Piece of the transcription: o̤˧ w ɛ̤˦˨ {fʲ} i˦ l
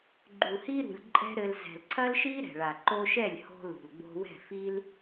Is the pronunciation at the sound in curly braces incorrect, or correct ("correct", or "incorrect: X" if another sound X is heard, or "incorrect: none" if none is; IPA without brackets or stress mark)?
incorrect: f